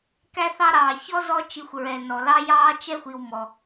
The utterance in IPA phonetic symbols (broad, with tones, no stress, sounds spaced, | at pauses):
k æ˦ θ ɑ˦ ɾ ɑː˩ ç ɔ˥ z ɔ˦ t͡ʃ i˨ xʷ ɹ ɛ˩ n ɔ˩ l ɑ˥ j ɑː˥ t͡ʃ ɛ˥ xʷ i˨ w m ɔ˩